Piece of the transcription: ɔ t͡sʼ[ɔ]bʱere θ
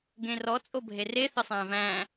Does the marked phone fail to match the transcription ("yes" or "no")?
yes